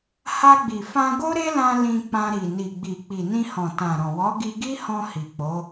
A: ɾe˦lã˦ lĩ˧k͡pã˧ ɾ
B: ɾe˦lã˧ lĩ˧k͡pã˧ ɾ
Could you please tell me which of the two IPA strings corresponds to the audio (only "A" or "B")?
B